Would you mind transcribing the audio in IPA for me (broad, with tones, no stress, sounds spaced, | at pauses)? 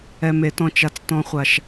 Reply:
ɛ˨ m e˨ t ɔ̃˨ t͡ʃ a˨ t͡s t ɔ̃˨ χʷ a˨ ʃ